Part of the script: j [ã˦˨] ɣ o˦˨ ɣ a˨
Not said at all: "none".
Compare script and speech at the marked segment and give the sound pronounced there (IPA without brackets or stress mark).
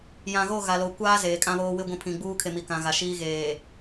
ã˨